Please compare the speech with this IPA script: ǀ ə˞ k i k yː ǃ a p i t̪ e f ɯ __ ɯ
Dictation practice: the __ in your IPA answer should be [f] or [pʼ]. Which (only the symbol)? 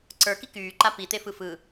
f